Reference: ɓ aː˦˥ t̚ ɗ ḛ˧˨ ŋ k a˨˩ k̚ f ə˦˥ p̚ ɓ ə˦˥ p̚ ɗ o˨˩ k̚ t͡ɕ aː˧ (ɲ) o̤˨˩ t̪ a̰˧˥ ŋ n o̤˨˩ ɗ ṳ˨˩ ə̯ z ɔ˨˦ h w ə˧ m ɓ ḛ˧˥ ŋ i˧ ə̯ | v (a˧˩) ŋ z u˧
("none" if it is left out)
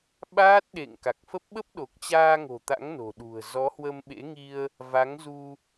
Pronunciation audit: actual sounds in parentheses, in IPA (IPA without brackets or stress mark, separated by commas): ŋ, a˨˦